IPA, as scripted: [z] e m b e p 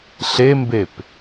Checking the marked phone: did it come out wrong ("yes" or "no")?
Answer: yes